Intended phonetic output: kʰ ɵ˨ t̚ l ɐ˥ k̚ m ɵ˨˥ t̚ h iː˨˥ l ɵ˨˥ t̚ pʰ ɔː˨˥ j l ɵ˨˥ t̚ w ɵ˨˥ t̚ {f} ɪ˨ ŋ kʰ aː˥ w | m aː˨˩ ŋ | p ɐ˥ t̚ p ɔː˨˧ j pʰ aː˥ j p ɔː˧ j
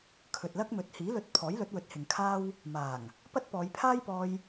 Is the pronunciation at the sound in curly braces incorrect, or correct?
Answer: incorrect